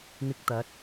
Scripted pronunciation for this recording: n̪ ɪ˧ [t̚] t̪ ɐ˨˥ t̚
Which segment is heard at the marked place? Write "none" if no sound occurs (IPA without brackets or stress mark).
k̚